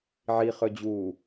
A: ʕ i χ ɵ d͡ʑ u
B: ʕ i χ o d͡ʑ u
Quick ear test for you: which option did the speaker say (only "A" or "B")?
A